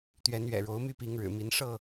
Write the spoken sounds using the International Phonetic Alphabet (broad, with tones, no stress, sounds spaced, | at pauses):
t̪ ɥ ɛ˨˦ n ɥ ɛ̰˨˩ ɻ o˨˦ ʊ̯ m y˦ p i˨˦ ŋ ɻ ɻ̩˨˩ m i˨˦ n ʂ ɤ˥˨